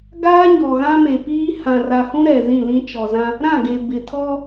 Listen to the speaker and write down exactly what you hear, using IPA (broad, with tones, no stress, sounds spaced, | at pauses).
ɡ aː˦ ɲ ɔ˨ ɣ ã˦ m e˨ p iː˦ h ã˨ r a˨ h ũ˦ ɾ ɛ˨ z ĩ˦˨ l ĩ˦ t͡ʃ ɔ˨ z ã˦ | ɾ ã˦˨ ɡ e˨ b ɪ˨ tʰ ɔ˦